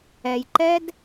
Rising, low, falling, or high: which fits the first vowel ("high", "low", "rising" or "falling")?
low